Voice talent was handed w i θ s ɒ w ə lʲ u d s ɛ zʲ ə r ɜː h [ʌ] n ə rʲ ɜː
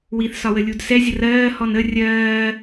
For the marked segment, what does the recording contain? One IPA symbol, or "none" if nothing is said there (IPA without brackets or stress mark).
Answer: ɔ